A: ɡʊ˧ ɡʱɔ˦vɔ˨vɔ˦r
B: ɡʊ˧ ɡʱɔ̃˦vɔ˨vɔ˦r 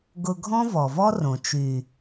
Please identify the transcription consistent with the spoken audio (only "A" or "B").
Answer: B